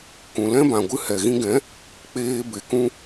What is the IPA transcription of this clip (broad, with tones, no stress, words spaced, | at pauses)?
kũ˨lɛ̃˦bã˨ ɡʷɨ˧hɛ˨ɣĩ˧ɡɛ̃˨˦ | k͡peː˧be˨kũ˧